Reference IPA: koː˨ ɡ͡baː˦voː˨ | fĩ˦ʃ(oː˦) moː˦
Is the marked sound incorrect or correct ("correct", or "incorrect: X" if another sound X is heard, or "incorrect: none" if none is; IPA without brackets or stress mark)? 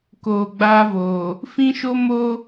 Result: incorrect: o˦